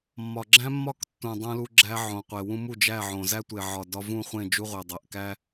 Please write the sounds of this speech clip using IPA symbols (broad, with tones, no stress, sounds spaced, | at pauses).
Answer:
mː ɒ˨ ɡ͡ǁ æ̃˦ mː ɒ˦˨ k tː ũ˨ dˤ ũ˧ l u˧ ɡ͡ǁ æ˧ ʕ õ˨ qʷ e˨ w ũ˦ m u˦˨ d͡ʒ æ˦˨ ʕ õ˨ z æ˦ tʷ e˨ ʕ ɒ˨ d ɒ˧ v ũ˦˨ χʷ ẽ˦˨ d͡ʒ u˧ ʁʷ e˨ dˤ æ˨ ʔ k æ˦